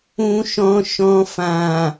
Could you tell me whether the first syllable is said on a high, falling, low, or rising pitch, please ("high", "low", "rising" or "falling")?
high